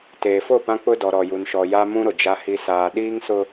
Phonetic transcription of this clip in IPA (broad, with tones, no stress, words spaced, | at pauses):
teː˨fo˦˨pã˦ k͡pʊ˦ dɔ˨ɾɔ˨ju˨nʃɔ˨ ja˦mũ˦ ɾʊ˨d͡ʒa˦hi˦ saː˨ ɗiː˦ŋsʊ˦